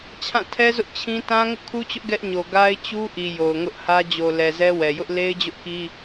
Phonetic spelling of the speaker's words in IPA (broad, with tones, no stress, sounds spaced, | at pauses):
t͡ɕʰ ã˦˨ tʰ ɛ˦ z ʊ˦ ʔ t͡ɕʰ ĩ˦ t ã˦ ŋ ʊ˦ ʔ kʰ u˦ t͡ɕ ʊ˦ ʔ ɡ ɛ˦ ʔ ɲ o˨ ɡ a˦ ɪ̯ t͡ɕ u˦ ʔ i˨ j o˨ ʊ̯ ŋ ʊ˦ ʔ h ä˦ d͡ʑ o˨ l ɛ˨ z ɛ˦ w ɛ˨ j ʊ˦ ʔ l e˦ ɪ̯ d͡ʑ ʊ˦ ʔ k i˦